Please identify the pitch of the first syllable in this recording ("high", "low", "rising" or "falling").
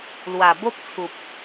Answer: low